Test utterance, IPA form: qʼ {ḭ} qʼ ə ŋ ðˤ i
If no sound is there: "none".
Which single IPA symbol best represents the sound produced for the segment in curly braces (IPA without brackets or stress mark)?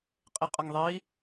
i